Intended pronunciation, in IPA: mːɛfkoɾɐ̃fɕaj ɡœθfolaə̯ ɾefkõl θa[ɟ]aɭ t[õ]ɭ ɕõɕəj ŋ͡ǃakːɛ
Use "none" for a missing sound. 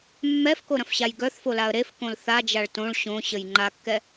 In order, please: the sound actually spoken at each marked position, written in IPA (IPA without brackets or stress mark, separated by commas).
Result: d͡ʒ, õ